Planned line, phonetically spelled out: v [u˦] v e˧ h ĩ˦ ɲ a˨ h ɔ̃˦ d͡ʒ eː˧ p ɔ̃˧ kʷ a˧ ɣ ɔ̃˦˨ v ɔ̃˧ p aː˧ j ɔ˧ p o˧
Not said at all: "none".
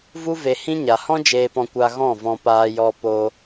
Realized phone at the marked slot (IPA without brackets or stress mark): u˦